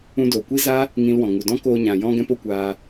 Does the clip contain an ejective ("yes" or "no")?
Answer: no